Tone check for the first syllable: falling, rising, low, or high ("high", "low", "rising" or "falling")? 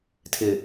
low